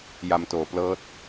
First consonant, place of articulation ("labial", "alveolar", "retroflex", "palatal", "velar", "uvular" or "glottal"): palatal